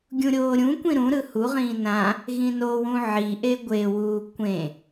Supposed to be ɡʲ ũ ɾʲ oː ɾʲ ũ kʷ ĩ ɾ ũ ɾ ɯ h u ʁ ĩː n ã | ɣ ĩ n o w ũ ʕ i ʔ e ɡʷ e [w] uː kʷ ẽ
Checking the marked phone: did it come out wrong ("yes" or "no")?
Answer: no